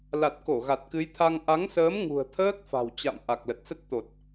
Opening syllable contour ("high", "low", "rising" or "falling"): low